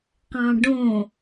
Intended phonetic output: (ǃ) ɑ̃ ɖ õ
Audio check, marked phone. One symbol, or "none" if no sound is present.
q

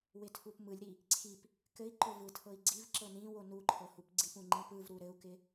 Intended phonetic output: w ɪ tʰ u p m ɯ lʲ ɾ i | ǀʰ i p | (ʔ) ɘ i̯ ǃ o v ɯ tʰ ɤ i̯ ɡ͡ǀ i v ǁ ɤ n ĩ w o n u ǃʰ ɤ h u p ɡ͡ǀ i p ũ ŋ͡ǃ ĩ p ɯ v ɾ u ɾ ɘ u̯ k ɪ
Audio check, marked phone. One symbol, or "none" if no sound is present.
k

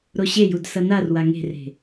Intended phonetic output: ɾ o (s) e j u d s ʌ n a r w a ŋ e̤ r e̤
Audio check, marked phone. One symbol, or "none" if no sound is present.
ɕ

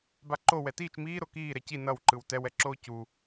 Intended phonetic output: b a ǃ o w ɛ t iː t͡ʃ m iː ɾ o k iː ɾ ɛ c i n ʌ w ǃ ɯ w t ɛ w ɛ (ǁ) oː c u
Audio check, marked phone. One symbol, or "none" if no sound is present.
ǁ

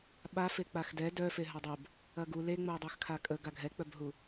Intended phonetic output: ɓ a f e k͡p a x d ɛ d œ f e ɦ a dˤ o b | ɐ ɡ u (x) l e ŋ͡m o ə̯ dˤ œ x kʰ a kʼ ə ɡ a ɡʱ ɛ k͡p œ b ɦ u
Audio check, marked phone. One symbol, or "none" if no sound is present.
none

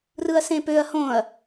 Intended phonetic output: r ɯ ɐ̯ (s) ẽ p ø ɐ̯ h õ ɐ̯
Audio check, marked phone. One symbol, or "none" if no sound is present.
s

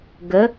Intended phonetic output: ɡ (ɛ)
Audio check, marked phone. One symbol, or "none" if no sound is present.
ə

